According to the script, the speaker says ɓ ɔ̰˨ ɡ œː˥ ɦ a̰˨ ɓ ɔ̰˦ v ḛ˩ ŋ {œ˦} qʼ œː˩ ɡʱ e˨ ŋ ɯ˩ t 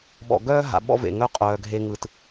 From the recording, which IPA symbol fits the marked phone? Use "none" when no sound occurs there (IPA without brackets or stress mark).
œ˦